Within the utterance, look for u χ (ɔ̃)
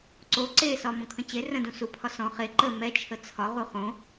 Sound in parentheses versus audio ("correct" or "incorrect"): incorrect